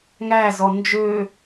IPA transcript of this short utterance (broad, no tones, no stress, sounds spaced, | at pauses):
ŋ æ z ɔ n d͡ʒ ø